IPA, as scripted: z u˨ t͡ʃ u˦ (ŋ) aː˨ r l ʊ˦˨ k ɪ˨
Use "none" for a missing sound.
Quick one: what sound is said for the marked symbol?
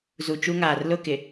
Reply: ŋ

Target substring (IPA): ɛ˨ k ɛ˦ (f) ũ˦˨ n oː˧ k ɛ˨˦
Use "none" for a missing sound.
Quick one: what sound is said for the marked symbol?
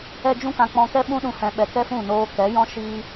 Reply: f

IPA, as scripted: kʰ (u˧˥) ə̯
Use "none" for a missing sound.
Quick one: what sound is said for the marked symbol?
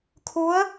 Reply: u˧˥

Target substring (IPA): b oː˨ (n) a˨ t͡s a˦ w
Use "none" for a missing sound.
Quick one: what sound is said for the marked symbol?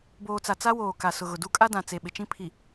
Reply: t͡s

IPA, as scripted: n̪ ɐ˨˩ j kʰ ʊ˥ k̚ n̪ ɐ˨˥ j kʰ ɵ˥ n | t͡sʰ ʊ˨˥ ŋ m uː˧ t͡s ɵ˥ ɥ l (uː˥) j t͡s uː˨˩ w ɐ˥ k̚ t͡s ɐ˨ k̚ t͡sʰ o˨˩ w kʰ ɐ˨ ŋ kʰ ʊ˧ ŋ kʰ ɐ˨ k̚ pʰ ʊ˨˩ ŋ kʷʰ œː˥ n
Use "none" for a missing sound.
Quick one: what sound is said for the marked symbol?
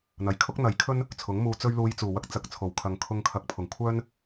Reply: uː˧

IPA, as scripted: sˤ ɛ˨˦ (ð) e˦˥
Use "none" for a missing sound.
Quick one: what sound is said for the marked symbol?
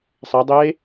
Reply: dˤ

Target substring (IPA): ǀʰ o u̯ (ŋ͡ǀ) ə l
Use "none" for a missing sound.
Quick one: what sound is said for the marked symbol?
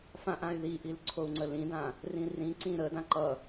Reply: ŋ͡ǀ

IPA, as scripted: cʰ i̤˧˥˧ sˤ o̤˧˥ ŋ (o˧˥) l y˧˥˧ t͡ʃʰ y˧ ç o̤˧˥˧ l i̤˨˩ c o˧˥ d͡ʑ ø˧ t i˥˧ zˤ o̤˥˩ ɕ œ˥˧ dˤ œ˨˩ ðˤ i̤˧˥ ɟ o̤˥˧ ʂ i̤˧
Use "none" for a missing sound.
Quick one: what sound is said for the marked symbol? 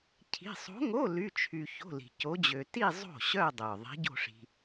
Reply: o˧˥˧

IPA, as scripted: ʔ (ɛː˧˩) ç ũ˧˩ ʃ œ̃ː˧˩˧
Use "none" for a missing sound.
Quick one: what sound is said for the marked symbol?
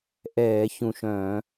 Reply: ɛː˧˩˧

